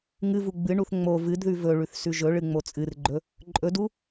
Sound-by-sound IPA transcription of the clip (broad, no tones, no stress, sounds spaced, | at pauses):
ŋ ɨ v u ɡ͡b ɨ ɳ u θ ŋ͡m o v ɨ d ð ʉ v ɵ ɭ ʉ θ s ʉ ʒ ɵ ɭ ɨ ŋ͡m o t͡sʼ ɨ r ɡ͡ǃ ɵ | ǃʼ ɵ d u